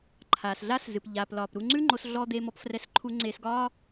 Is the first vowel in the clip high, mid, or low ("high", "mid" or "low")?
low